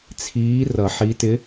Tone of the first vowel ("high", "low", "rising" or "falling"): rising